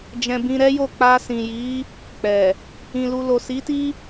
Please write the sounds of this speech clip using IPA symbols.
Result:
d͡ʒ ɛ̃˧ b ĩ˧ ɾ ɛ˦ j o˦˨ k͡p a˧ s ĩ˨ j i˨˦ | k͡p ɛ˨ | ĩ˨ l u˨ l o˨ s i˨˦ t i˦

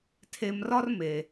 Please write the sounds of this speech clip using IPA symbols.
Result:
tʰ e˧ m r ɒ˥ r m e˩

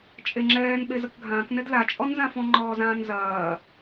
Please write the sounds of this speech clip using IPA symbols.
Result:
t͡ʃʼ e ŋ͡ǁ ɛː n ɓ e z ɐ k ɡʱ ãː k n ɛ d l a t͡ʃʼ ɔ n z ã f ɔ̃ ŋ͡ǃ ɔː z ãː n z ɐː

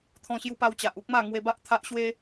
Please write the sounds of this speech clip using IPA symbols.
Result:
t̪ʰ ɔ̃˧ ɕ j u˧ p a˧ w t͡ɕ a˨ ʔ u˦ k̚ m a˥˧ ŋ w e˧ b a˦ ʔ t̪ʰ a˦ ʔ ɕ w e˦

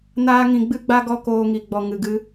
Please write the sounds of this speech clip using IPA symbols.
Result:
n aː˦ ŋ ĩ˧ ɡ͡b ɨ˦ ɡ͡b a˦ ɡ ɔ˦ k oː˧ ŋ i˨ ɡ͡b ɔ˨ ŋ ɨ˨ ɡ ɨ˧

